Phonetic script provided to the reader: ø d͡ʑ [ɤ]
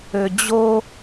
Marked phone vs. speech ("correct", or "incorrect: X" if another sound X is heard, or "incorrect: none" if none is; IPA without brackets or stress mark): incorrect: o